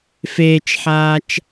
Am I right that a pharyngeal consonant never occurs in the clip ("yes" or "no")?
no